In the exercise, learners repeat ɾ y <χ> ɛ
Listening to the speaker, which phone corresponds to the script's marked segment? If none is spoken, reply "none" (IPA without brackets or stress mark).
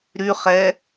χ